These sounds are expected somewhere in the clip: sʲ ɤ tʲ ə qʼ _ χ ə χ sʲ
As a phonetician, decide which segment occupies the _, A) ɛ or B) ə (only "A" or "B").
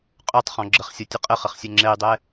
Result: B